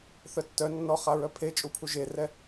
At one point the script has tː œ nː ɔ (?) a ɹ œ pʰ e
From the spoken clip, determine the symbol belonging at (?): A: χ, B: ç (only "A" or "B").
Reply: A